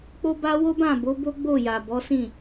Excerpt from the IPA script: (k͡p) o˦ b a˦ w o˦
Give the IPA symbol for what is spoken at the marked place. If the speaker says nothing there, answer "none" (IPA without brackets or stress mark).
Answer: k͡p